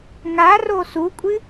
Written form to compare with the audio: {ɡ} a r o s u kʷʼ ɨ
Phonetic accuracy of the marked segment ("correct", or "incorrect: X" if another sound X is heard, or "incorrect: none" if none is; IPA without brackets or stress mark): incorrect: ŋ